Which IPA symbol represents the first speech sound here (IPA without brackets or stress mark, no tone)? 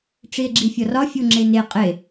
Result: ʈ͡ʂ